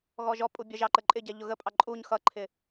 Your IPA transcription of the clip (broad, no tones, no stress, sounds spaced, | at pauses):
ɣ ɔ ʒ ɔ pʼ u bʲ ɜ ʒ ɑ ǃ ə ǃʼ ɪ ɟ ɛ ʎ ʊ ɣ ə pʼ ɑ ǃʼ u ɲ x ʌ ǃʰ ɪ